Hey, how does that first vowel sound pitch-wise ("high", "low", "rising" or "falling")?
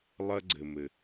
high